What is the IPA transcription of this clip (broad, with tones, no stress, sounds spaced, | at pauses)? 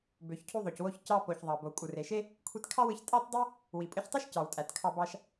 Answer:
b ø˩ ç cʰ u˧ ðˤ o˩ c w o˧ ç c ɑ˧ p o˩ ç ðˤ ɑ˩ b o˩ kʷʼ ɯ˩ r e˩ ʃ e˥ | kʷʰ i˧ t kʰ ɑ˥ w ɯ˧ ç tʼ ɑ˥ t dˤ ɯ˥ | w i˩ pʼ ɯ˧ ç tˤ o˥ ʃ c ɑ˩ w tʼ æ˩ t kʰ ɑ˧ b ɑ˧ ʃ